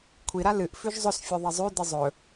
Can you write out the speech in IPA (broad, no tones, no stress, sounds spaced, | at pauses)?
kʷʰ i ɾ a l ɨ ʔ f ʉ ʒ zˤ ɵ s fʲ o ðˤ ɐ zˤ ʉ d ɨ zˤ ɵ